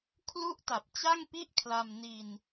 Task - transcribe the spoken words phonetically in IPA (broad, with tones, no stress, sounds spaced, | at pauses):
kʰ l u˥˩ ʔ t a˨˩ p̚ t͡ɕ a˥˩ ŋ p i˥˩ ʔ kʰ l a˧ m n i˧ n